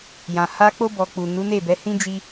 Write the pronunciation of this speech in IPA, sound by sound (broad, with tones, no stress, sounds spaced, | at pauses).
j ã˨ h a˧ k͡p o˧ b ɔ˨ k͡p u˨ n u˨˦ n e˦˨ b ɛ˨˦ h ĩ˦ d͡ʒ i˧